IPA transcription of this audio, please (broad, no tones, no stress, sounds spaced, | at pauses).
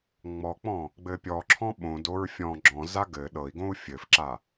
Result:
ŋ͡m ɔ k͡p ɔ̃ | ɡ͡b ɘ pʲ ɔ ǁʰ ɔ̃ ɓ õ d o ɹ fʲ ɔ̃ ɡ͡ǁ ɔ̃ z a ɡ ɘ ɗ ɤ i̯ ɡ õ u̯ fʲ ɘ f ǁ a